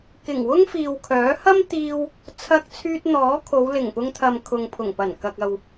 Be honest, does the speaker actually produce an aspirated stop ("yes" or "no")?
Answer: yes